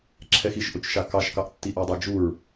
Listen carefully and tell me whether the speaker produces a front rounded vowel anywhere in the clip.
no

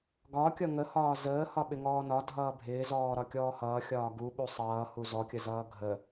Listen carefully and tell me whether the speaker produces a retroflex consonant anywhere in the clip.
no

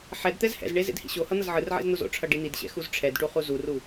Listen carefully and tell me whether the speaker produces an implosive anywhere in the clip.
no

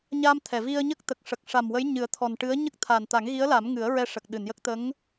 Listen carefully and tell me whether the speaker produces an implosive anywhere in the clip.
yes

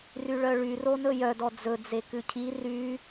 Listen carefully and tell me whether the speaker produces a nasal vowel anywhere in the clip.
no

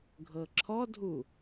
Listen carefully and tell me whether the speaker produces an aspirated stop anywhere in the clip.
yes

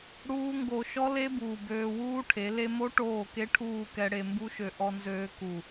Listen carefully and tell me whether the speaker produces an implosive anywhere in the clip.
no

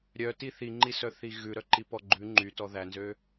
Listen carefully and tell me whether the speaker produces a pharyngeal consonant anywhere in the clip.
no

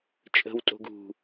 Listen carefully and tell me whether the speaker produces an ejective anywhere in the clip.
yes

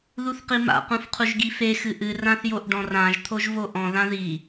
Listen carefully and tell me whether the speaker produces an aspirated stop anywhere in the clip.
yes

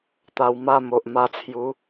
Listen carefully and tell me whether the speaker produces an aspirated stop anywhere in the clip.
yes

